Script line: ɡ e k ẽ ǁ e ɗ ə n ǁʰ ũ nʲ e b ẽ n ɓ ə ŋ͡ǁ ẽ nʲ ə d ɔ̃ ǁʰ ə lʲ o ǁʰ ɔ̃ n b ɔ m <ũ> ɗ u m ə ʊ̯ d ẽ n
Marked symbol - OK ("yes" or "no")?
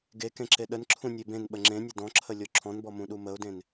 yes